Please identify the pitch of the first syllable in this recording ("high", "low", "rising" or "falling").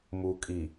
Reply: low